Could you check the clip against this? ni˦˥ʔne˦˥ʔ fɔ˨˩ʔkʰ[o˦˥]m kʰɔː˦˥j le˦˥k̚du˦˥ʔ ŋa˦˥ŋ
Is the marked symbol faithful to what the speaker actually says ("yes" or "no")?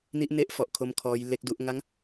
yes